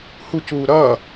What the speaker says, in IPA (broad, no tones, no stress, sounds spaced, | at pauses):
h u c uː ɾ ʌː